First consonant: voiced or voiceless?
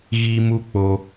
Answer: voiced